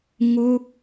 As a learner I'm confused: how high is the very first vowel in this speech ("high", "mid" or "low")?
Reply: mid